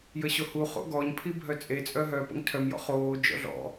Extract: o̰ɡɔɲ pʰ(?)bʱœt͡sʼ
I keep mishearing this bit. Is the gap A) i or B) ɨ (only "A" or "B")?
A